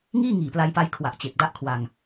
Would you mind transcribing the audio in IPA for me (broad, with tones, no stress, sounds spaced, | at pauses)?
ŋ iː˥˩ ŋ iː˨˩ p l a˧ j p a˧ j kʰ w a˨˩ ʔ t͡ɕ e˨˩ k̚ d a˦˥ ʔ kʰ w a˧ ŋ